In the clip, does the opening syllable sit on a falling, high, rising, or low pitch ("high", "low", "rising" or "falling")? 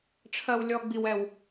high